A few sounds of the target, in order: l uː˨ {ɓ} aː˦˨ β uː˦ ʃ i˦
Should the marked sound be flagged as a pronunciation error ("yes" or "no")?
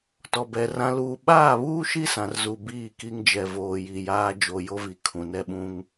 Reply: no